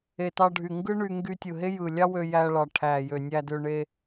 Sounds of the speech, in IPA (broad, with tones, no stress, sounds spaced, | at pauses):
e˨ t ɑ˧ ɖʱ y˨ ŋ ɡ ɯ˦ ɳ y˧ ŋ ɡ y˧ tʲ ɯ˨ ɦ e˦ j ɯ˨ lʲ ɑ˦ w ø˧ j æ˧ ɭ ɑ˨ ʈʰ æ˨ j ø˨ nʲ æ˧ d ø˧ ɳ e˧